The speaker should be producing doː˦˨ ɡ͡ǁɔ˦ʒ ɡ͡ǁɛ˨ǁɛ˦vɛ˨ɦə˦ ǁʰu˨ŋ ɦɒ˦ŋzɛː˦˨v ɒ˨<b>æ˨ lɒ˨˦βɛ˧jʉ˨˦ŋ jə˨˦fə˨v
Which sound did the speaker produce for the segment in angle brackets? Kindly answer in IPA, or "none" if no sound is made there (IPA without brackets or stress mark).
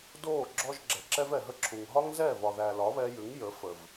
ð